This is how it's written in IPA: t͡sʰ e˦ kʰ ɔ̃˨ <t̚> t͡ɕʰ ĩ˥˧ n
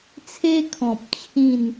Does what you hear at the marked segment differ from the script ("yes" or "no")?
yes